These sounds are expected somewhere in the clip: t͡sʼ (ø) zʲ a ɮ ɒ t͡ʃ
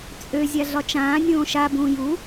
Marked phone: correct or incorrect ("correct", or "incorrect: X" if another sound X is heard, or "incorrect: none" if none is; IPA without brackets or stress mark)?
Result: correct